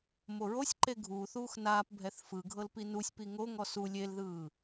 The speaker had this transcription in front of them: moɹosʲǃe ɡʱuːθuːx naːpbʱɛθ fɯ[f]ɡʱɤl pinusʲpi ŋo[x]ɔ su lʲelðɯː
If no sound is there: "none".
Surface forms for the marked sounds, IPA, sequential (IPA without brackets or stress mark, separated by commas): none, ŋ